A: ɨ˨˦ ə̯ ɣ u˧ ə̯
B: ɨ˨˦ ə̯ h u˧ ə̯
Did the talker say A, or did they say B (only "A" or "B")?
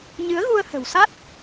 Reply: A